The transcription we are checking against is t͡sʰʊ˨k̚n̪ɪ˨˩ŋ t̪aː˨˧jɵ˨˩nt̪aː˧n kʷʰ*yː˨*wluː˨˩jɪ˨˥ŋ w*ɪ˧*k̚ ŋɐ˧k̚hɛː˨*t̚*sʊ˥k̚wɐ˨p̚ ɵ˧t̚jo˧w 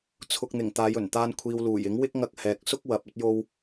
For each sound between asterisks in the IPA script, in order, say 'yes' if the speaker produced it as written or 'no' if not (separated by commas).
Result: no, no, no